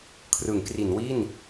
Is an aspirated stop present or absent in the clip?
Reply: present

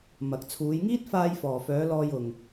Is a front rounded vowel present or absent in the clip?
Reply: present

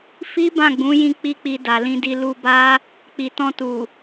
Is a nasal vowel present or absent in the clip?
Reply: present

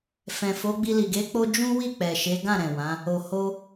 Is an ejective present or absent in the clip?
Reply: absent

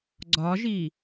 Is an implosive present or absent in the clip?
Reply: absent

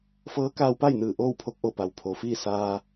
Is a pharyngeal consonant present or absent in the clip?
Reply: absent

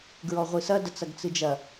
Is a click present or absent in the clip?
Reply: absent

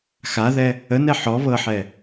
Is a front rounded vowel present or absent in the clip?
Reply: absent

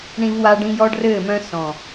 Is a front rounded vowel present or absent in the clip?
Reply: present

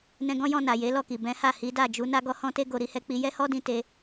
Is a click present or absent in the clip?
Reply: absent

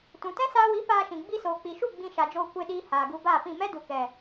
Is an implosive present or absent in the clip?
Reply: present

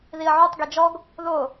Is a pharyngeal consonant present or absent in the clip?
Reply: present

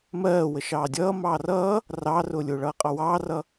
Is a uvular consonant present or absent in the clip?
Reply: present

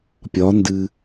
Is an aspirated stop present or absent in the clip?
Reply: absent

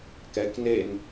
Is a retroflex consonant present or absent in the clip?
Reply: absent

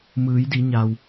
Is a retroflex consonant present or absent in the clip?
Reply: absent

